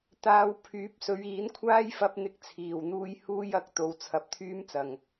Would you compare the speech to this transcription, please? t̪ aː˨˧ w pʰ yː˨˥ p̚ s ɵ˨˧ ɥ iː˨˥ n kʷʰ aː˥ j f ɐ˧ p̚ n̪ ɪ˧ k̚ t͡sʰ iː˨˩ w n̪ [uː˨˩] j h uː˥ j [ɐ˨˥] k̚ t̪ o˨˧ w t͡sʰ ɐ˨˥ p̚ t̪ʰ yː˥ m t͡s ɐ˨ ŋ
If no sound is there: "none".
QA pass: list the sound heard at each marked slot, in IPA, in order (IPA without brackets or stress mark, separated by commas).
uː˧, ɐ˨˥